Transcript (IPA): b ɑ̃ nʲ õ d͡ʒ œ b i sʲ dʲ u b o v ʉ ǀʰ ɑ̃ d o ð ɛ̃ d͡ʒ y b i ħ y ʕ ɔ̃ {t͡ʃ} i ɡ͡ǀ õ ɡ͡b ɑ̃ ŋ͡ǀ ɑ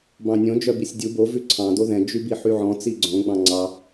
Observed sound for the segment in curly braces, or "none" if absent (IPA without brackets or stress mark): t͡s